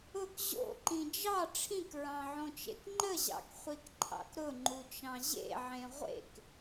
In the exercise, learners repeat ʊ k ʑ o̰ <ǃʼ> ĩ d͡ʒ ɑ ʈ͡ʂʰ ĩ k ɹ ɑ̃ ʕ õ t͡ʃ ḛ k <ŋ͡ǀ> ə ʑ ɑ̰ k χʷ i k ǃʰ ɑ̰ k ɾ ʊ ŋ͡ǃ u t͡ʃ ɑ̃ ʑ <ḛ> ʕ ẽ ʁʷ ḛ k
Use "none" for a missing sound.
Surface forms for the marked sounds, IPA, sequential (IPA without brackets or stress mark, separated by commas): ǃ, ŋ͡ǃ, ḛ